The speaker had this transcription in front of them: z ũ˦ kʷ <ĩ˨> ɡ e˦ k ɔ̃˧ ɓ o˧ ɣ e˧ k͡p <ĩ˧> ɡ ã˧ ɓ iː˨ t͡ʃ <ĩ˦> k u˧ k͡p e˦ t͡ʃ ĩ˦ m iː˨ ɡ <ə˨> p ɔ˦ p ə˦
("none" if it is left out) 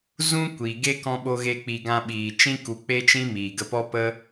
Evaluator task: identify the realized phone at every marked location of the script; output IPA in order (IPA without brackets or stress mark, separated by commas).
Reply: i˨, i˧, ĩ˦, ə˧